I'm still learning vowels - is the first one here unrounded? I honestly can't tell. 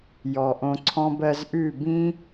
no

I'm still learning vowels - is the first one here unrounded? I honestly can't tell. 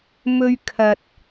no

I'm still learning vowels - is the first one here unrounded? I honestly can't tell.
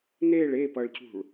yes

